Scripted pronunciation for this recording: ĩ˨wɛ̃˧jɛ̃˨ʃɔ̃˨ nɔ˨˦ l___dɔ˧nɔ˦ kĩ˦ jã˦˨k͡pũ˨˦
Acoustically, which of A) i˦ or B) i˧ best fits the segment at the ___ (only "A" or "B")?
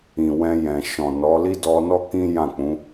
A